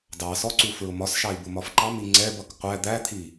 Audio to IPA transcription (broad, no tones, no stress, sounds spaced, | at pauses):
d ɑ s ɔ ǀ u f ɹ ʊ m ɒ s ʃ ɑ i̯ b ʊ m ɒ f ǃ ɑ m i ŋ͡ǀ ɛ b ʌ k qʷ æ d̪ æ t̪ʰ i